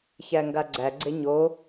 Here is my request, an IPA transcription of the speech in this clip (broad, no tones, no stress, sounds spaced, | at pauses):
ç æ ŋ ɡ a ɡ͡ǀ æ ɡ͡ǀ e ɲ o